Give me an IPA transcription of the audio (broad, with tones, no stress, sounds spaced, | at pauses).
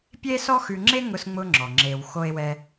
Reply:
pʲ e˥ s ɔ˥ x ʉ˧ ŋ͡ǁ e˥ ŋ ʊ˧ s ŋ͡m ʊ˧ ŋ͡ǁ ɔ˩ ŋ͡ǁ e˩ w x o˥ e̯ w ɛ˥